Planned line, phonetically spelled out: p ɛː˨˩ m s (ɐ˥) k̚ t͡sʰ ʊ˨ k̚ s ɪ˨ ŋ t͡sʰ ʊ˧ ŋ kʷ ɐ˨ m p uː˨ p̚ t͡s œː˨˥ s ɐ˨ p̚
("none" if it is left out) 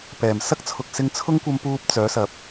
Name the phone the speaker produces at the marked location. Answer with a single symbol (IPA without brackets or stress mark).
ɐ˥